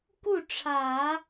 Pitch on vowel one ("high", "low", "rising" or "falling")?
falling